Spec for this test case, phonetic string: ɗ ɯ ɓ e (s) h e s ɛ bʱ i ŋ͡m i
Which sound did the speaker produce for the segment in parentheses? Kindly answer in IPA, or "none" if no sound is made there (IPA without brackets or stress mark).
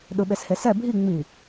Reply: s